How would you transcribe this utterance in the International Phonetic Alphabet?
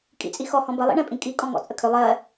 kʼ ḭ t͡sʼ i x ɔ h ɔ̃ b ə lˠ ḭ ɳ ɛ̃ pʼ ĩ kʼ i kʼ ɔ̃ ŋ ɔ̰ t͡sʼ ə kʰ ʏ lˠ ɜ

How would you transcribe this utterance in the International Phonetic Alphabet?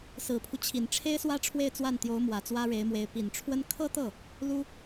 s ɹ̩˨˩ pʰ u˦ t͡ɕʰ i˨˩ n ʈ͡ʂʰ e˥ ɪ̯ s w ä˥ ʈ͡ʂʰ w e˥˧ ɪ̯ t͡s w a˥˩ n t̪ j o˧˥ ʊ̯ m w ä˨˩ t͡s w ä˥ ɻ e˧˥ ɪ̯ m w e˧˥ ɪ̯ p i˨˩ n ʈ͡ʂʰ w ə˥ n kʰ ɤ˥ t̪ ɤ˥˩ | l u˥

